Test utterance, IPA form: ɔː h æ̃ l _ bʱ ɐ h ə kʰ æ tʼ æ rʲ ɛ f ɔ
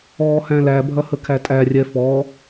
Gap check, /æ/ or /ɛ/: æ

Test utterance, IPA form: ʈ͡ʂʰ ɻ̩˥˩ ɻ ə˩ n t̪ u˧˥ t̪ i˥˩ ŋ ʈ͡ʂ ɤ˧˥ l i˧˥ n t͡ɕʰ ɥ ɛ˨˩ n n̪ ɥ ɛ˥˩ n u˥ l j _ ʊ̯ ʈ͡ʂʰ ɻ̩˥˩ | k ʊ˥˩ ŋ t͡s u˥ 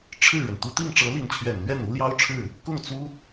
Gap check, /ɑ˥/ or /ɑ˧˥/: ɑ˥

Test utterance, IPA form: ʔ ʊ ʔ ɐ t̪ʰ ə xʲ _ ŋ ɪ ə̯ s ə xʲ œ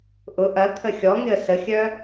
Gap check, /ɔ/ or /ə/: ɔ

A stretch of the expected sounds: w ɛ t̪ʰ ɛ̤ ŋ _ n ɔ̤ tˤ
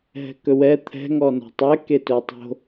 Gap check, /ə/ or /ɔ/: ɔ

